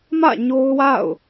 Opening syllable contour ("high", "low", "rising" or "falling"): falling